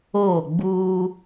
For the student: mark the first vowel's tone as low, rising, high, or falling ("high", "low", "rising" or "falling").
falling